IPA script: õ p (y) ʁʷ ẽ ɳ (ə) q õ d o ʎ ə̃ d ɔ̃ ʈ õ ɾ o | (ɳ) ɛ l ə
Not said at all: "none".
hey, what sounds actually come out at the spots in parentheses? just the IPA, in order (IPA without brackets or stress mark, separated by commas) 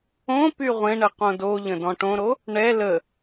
y, ə, ɳ